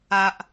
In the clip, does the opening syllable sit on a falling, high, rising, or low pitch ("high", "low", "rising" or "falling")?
low